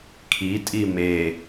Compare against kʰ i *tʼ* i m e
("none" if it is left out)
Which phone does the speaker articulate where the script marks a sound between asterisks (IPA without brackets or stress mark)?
tʼ